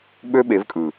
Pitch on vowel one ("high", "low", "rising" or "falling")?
high